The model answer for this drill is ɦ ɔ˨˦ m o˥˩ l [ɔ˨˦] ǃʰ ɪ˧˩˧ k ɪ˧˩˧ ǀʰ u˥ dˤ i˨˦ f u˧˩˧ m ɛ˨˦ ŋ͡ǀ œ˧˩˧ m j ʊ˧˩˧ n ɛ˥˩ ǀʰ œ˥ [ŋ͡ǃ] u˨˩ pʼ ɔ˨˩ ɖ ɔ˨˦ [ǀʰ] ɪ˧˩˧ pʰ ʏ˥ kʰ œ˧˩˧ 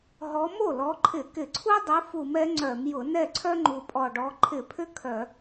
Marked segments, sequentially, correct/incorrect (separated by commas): correct, correct, incorrect